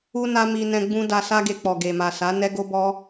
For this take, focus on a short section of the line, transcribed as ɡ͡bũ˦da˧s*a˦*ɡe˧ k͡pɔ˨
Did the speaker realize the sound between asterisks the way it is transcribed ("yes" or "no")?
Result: yes